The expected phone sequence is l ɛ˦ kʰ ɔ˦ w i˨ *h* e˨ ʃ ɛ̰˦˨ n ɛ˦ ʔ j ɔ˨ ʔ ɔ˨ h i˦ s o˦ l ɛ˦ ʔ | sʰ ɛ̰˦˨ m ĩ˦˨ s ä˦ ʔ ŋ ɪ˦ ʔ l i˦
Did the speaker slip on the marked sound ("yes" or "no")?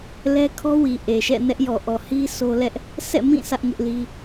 yes